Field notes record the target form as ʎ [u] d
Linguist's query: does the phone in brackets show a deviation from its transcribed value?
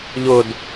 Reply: yes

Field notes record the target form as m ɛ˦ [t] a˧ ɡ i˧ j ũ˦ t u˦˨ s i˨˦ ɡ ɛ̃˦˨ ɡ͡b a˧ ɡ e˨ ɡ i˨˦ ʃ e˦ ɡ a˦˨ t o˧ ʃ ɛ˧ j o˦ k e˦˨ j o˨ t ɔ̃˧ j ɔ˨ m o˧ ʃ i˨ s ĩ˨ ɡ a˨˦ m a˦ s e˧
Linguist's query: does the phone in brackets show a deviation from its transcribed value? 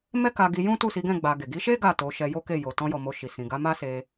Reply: yes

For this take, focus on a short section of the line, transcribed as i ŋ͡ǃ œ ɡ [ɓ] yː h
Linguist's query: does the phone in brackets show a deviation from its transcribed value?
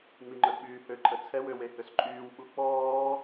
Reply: no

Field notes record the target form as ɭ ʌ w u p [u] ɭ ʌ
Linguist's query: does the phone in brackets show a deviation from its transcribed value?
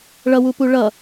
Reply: no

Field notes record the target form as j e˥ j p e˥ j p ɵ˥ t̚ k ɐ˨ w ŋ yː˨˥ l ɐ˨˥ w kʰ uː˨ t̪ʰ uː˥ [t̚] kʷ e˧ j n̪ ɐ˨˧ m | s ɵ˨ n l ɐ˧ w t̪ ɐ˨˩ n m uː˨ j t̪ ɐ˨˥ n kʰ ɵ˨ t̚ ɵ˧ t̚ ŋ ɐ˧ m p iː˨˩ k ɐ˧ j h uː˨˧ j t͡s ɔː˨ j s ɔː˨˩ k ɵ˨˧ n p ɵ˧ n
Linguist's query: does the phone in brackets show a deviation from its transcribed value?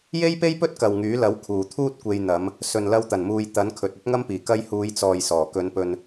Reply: no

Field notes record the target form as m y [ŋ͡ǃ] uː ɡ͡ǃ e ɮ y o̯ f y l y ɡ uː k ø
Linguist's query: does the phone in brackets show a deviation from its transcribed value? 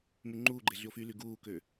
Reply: no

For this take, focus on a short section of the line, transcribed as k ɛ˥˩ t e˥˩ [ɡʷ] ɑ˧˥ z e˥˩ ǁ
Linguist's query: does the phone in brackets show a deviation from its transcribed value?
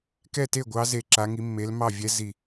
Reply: no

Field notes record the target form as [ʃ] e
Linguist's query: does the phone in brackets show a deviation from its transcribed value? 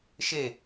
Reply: no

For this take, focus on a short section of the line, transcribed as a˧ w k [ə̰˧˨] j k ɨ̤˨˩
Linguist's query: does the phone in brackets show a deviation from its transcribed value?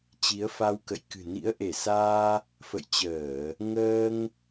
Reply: no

